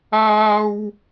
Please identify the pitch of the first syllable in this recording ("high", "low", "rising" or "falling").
high